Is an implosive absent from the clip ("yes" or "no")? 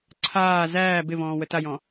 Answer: yes